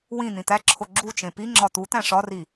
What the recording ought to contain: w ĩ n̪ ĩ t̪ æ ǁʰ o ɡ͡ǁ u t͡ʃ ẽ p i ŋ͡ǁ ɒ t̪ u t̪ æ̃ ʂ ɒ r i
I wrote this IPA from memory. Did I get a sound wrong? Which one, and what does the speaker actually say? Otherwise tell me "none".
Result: none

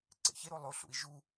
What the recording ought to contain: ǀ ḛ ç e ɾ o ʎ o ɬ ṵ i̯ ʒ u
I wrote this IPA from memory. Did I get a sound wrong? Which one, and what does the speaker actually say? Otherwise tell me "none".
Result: ʎ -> lˠ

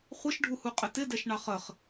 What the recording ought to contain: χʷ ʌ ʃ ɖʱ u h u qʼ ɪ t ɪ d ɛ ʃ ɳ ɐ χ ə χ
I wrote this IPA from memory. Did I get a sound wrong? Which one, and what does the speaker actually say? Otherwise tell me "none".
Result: ɐ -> ɑ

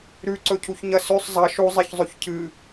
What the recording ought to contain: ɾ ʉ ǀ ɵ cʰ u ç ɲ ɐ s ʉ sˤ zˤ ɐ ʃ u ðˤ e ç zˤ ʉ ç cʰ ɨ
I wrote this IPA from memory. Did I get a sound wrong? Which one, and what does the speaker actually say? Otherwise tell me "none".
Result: ðˤ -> zˤ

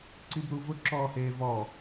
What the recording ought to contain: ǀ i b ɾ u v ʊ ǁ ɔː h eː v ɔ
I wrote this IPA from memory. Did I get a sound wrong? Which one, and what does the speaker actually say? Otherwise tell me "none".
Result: none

